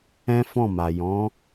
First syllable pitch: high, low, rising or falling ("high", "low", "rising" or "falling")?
high